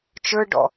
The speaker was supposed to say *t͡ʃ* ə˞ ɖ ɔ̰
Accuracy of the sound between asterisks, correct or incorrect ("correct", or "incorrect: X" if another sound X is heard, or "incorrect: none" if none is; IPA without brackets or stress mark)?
correct